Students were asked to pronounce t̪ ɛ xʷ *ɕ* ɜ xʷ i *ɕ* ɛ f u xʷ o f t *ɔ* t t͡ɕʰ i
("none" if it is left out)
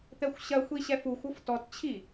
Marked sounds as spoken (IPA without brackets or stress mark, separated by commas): ɕ, ɕ, ɔ